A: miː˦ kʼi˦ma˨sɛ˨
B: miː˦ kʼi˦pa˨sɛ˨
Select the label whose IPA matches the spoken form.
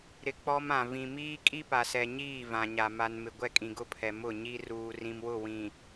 B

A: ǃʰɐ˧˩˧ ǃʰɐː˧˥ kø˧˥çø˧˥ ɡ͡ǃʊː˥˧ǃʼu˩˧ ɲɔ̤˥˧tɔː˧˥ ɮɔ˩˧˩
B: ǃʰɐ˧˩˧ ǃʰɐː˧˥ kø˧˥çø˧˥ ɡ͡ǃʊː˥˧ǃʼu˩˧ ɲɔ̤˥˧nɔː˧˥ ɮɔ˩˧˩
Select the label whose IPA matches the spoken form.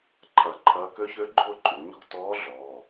A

